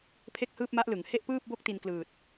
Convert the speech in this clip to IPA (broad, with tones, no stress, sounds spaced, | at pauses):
pʰ e˥˩ k̚ h ɯː˥˩ p̚ m a˦˥ ʔ l ɯ˩˦ ŋ h e˥˩ ʔ p ɯː˥˩ p̚ b o˦˥ k̚ t i˧ n k l ɯː˨˩ t̚